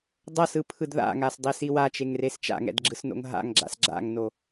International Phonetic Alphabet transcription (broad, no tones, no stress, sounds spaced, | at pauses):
dˤ ʌ s ɯ pʰ ɯ d ð a̰ ŋ a s dˤ i s i w a t͡ʃ e ŋ r e s t͡ʃ a̰ ŋ ɛ̰ d ɡ͡ǁ ɯ s n o̰ ŋ ɦ a̰ ŋ ɡ͡ǁ a̰ s ɡ͡ǁ a̰ ŋ n o